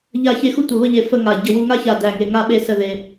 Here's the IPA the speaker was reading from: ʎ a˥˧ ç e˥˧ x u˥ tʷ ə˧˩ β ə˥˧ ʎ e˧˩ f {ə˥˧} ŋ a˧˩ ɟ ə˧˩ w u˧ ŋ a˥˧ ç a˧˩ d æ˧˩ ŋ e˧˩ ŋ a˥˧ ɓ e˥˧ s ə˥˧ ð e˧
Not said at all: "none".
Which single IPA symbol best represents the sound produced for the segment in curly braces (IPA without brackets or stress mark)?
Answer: ə˥˧